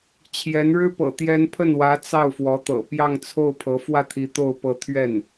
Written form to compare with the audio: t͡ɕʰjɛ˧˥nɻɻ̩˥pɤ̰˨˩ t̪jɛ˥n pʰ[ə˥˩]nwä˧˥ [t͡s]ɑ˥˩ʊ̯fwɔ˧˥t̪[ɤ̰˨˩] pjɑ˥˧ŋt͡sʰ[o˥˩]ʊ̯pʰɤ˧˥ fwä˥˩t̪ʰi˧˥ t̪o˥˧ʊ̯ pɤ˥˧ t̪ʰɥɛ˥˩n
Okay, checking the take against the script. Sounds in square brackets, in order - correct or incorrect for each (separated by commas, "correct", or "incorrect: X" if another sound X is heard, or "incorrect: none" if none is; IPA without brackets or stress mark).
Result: correct, correct, correct, correct